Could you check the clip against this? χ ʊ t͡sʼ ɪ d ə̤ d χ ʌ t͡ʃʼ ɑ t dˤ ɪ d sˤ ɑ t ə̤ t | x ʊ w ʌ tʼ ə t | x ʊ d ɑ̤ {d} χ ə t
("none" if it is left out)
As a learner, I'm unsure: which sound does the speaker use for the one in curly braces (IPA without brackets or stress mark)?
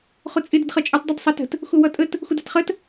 t